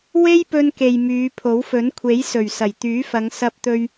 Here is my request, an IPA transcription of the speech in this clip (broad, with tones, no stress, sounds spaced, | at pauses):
w e˥ j p ɵ˧ n k e˨ j m yː˨˧ pʰ o˨˥ w f ɵ˨˥ n kʷʰ e˨˥ j s ɵ˨˩ ɥ s ɐ˨˩ j t̪ yː˨˥ f ɐ˨˧ ŋ s ɐ˧ p̚ t̪ ɵ˧ ɥ